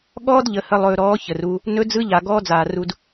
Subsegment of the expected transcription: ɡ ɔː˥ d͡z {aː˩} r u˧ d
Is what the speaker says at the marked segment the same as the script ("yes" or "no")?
yes